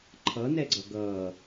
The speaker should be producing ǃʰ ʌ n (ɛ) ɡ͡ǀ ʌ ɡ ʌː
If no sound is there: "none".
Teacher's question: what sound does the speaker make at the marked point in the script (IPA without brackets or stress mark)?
ɛ